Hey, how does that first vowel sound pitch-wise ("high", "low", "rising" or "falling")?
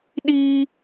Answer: high